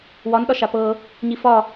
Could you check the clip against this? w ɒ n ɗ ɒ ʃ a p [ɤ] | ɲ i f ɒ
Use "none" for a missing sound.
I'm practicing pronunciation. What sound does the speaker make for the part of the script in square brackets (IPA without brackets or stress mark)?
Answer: ɤ